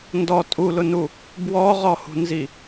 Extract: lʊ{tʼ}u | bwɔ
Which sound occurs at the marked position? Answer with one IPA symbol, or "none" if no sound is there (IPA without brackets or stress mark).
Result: n